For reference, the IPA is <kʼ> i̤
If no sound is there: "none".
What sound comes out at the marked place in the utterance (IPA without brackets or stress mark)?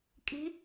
kʼ